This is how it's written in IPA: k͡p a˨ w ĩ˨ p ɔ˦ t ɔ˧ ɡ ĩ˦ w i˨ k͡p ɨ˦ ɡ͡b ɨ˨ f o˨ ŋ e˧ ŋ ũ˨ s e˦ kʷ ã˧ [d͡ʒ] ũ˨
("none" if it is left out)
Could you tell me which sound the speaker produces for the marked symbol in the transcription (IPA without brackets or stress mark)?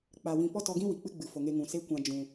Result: d͡ʒ